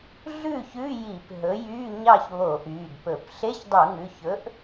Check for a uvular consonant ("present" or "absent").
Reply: absent